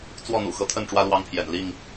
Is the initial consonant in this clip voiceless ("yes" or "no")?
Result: yes